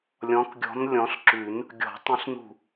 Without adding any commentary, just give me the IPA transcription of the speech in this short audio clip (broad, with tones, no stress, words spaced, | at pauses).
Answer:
lʲɔ̃˨˦kɡʲɔ̤˨˦n lʲɔ̃˨˦ɬǁʉ˨˩˦n | ɡʲɔ̤˨˩˦ tˤə̃˨˦ɬnṳ˧˩